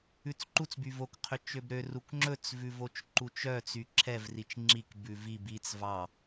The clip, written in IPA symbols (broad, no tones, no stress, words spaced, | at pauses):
ʉt͡sǃut͡s byvok qʰøt͡ʃøbɾø rukŋ͡ǁɵt͡s vʉvot͡ʃǃut͡ʃœ t͡syǁʰɛv rit͡ʃŋ͡ǁik bʉvib it͡s vɑ